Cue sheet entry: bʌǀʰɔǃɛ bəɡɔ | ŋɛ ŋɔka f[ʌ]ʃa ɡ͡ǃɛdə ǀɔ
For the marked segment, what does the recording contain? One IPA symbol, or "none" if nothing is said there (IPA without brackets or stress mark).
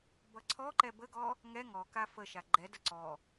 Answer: ə